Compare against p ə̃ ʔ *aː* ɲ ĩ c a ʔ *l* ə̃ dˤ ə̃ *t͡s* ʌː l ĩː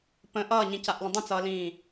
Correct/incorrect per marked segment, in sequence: incorrect: ʌː, correct, correct

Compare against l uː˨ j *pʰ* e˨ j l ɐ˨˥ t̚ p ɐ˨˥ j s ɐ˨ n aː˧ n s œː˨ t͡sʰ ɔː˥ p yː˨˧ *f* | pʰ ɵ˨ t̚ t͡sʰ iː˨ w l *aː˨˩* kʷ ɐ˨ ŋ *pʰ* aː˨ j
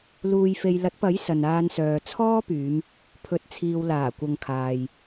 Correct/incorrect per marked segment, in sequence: incorrect: f, incorrect: m, correct, incorrect: kʰ

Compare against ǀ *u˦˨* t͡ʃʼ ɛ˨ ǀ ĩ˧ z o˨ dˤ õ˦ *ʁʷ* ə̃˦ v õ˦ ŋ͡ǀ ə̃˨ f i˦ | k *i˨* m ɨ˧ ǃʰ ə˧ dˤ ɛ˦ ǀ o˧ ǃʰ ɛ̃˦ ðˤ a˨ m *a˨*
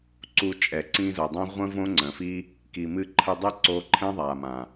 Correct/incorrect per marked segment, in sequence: incorrect: u˧, correct, correct, incorrect: ã˨

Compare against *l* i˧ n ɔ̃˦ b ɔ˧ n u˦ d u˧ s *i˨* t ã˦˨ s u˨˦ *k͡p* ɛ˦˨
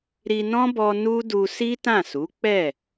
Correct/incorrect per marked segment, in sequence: incorrect: ɾ, incorrect: i˦, correct

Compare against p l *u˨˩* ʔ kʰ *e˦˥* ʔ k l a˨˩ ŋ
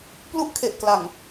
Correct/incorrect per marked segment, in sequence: incorrect: u˥˩, incorrect: e˨˩

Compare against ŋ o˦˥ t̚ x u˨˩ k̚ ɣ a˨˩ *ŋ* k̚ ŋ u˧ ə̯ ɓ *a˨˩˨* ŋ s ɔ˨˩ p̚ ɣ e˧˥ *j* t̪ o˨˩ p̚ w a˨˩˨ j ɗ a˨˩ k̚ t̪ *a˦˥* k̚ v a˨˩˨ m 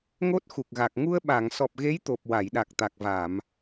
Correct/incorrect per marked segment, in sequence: incorrect: none, correct, correct, incorrect: a˨˩

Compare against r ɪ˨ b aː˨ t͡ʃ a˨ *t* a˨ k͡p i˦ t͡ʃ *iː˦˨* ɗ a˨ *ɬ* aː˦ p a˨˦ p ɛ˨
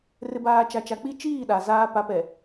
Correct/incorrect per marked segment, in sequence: incorrect: t͡ʃ, correct, incorrect: z

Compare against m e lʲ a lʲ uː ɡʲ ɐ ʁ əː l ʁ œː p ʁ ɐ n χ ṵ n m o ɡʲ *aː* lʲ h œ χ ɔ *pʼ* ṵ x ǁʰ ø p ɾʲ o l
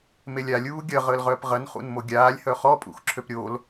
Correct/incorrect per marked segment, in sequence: correct, correct

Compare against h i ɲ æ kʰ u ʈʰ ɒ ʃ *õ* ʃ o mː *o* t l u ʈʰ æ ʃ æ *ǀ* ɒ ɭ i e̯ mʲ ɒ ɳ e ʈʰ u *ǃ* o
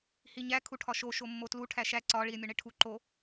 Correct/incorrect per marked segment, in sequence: incorrect: o, correct, correct, correct

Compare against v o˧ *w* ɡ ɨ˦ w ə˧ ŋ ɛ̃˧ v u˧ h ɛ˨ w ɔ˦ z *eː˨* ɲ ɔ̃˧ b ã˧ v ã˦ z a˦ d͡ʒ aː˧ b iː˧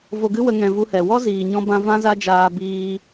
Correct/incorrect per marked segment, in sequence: incorrect: none, incorrect: iː˨

